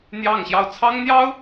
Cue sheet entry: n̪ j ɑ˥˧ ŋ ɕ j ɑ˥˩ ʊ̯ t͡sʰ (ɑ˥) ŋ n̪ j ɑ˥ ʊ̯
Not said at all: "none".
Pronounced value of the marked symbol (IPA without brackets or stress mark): ɑ˥